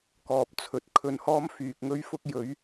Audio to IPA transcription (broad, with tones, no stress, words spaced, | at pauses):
kɔː˨p̚ t͡sʰɵ˨˥t̚ kʰɵ˧nhɔː˥m fyː˨k̚ŋɵ˥ɥfʊ˥k̚ jɵ˨˥ɥ